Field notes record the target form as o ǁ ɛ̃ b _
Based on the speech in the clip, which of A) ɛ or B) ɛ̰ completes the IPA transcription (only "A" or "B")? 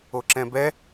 A